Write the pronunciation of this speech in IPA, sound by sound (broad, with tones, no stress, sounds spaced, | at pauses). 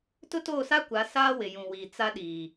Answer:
t ʊ˦ t oː˦˨ s a˦ kʷ a˨˦ s aː˦ w ɪ˨ j ũ˨ w iː˨ t͡s a˦ ɗ iː˨